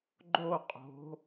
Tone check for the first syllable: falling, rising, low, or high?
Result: falling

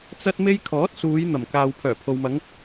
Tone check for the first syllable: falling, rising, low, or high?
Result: high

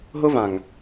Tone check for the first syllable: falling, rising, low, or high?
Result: high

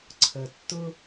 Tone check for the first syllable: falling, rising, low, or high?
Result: low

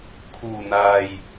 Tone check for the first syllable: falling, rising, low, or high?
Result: low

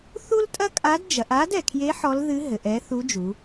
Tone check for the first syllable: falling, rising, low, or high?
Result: high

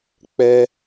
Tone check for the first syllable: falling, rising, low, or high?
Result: high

